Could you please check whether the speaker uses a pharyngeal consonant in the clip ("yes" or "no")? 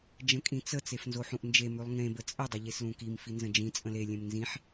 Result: yes